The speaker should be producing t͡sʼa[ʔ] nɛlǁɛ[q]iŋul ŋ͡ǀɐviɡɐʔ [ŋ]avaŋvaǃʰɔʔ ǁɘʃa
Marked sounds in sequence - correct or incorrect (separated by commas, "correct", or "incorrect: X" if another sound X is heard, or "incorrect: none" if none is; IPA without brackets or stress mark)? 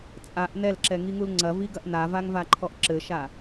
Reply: correct, incorrect: ŋ, incorrect: n